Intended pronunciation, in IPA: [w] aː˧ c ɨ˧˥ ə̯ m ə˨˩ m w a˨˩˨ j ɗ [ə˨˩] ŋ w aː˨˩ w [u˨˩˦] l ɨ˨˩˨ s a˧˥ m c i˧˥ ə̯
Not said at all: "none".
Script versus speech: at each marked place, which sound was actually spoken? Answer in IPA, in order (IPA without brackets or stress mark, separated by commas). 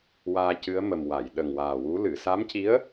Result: w, ə˨˩, u˧˥